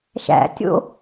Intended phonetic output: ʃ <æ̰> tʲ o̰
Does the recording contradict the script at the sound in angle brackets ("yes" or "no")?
no